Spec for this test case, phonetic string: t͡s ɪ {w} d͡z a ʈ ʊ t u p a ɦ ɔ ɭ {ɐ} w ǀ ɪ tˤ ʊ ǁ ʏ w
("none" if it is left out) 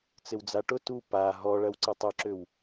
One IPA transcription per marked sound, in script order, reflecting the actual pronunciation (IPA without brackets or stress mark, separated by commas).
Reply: w, ɐ